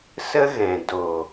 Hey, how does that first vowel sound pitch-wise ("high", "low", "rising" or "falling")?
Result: high